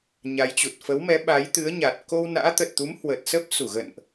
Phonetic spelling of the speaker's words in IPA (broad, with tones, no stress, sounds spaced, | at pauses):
ɲ a˨˦ j t͡ɕ u˨˩ t̚ f ə˨˦ w m ɛ˨˦ ɓ a˨˦ j t̪ ɨ˨˦ ə̯ ɲ a˨˩ t̚ k o˧ w n a̰ː˧˥ t̪ ə˨˩ t̚ t̪ u˨˦ m h w ə˨˩ t̚ s ə˦˥ p̚ s u˧˩ ɣ ə̰˧˨ n ʔ